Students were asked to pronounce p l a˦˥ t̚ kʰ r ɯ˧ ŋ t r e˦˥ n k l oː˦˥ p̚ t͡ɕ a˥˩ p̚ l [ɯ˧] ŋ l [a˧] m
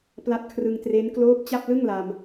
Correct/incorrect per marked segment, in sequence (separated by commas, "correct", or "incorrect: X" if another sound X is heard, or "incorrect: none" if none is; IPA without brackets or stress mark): incorrect: ɯ˥˩, correct